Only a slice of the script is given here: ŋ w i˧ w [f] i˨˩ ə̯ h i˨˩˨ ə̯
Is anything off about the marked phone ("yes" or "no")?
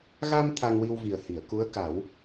yes